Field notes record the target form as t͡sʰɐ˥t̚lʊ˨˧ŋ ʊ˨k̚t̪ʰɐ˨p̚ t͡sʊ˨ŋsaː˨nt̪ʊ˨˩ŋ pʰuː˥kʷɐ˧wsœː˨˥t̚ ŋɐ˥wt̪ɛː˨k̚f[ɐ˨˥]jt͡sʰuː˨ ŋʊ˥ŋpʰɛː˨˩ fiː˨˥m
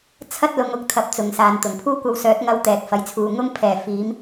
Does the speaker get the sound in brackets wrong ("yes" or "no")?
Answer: no